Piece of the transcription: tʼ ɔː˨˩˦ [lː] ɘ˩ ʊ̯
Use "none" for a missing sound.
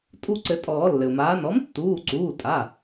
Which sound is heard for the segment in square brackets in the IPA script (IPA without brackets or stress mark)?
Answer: lː